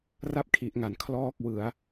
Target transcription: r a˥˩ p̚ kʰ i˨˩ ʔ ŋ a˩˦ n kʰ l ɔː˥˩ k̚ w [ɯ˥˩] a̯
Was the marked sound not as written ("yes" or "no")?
yes